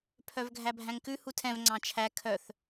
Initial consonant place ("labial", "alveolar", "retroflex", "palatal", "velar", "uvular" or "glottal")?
labial